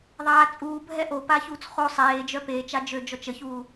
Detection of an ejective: present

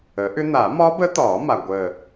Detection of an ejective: absent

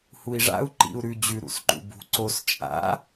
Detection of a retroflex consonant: present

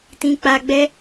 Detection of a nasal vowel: present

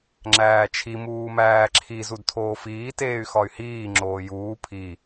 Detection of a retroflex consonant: absent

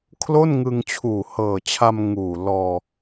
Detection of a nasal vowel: absent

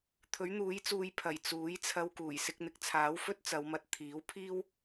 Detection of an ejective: absent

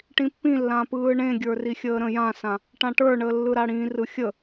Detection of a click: absent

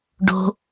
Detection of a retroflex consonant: present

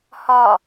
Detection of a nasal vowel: absent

